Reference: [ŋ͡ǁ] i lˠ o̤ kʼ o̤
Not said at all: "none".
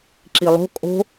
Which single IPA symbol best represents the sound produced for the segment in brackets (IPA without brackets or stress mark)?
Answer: ǁ